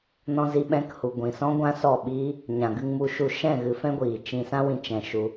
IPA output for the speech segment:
nɔ̃˧zi˧ɓɛ̃˧k hu˨ɡʷĩ˨sɔ̃˦ ɡʷã˦sɔ˦˨ɓi˦ | ɲã˨ɡɨ˧ŋmu˧ʃu˦˨ ʃɛ̃˦˨ ɣɨ˧fɛ̃˦ɡʷiː˨ t͡ʃĩ˧ sã˦wĩ˧ t͡ʃɛ̃˧ ʃu˧

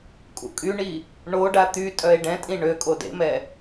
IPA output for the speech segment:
kʼṵkʼyɳi | ɳoɖa t̪ytʼœe̯ ɖɛ̃tʼĩ ɳøkʼo dḛmɛ

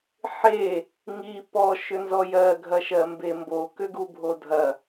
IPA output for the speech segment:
ħe | ŋi pɔ ʃʏnzɔjɜ ɡʱɐʃɜmbembo kʏɡubʱodʱɐ

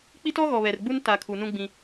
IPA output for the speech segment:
k͡pi˦tɔ˦ ɣɔ˨βɛ˨rɡ͡bu˦n ta˨ kʰu˨nũ˦ ɡ͡bĩ˦

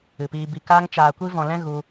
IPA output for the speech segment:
ɨ˨piː˧bi˧ kaː˧ŋt͡ʃaː˨kʷi˧vɔ̃˨ lɛ̃˦ɣu˧

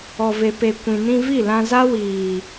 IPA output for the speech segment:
ɔ˨ ve˨pe˨ kʷĩ˨ nĩ˧vi˦˨lã˧za˦ wiː˨

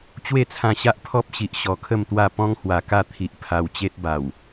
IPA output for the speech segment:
t͡ɕwe˥˧t͡sʰã˧ɕa˦ʔ pʰɔ˦p̚ɕi˨ʔ ɕɔ˨˩kʰə˥˧mt̪wa˥˧ pɔ̃˦ŋhwa˨˩ka˥˧ t̪ʰi˨ʔ pʰa˧wt͡ɕe˦t̚ ba˨˩w

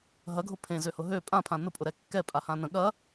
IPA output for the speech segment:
ɦɐɡʱʊ pʰẽzøhʊ ɦø pʼãpʰã nʊpʼʊɾɛ kːɛpʼahã nə̃ ɠɐ

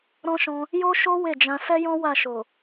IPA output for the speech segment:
ɾɔ̃˦ʃɔ̃˧ | jo˦ʃo˦ we˦˨d͡ʒã˧ sɛ˦jɔ̃˦ wa˦˨ʃo˨

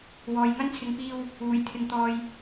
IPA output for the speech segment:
wɔː˨jŋɐ˥nt͡sʰɪ˨˥ŋpiː˧w | uː˨˩jt̪ʰɪ˨ŋt̪ɔː˨j

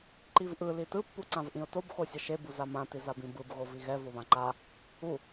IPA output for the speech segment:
ǃivʔɯ litɯ pːuǀãvʔĩʊ̯tob xosʲʌʃe buzamã tizabĩbɯb ɣoviɣɛ voβãǃa | u

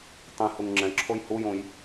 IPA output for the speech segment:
tˤĩhuŋ ŋ͡ǁɛ̃ǁʰoj hujõj

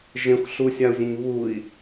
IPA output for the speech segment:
ʒẽxʷ ɬusʲau̯zʲẽɲ βui̯

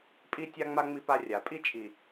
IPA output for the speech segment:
pʼi˦ tʲa˦ŋ͡ma˦ ŋ͡mi˦pa˦ rʲa˨pʼi˦ t͡ʃʼi˨

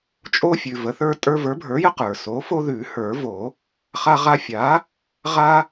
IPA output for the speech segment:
t͡ʃʼo˦fʲʉ˩ və˩˥θə˞˦tʼə˞˦ və˞˩˥bʱə˞˩˥jə˦ qə˞˩ so˩˥ fo˦ðʉ˨˩˦hə˞˨˩˦vo˨˩˦ | χa˦ʁa˦ fʲa˩˥ | ʁa˦

